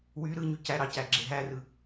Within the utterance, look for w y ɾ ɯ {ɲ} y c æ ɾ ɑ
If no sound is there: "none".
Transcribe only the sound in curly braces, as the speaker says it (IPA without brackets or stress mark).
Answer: ɲ